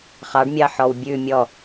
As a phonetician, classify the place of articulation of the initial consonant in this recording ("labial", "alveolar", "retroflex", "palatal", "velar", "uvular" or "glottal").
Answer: uvular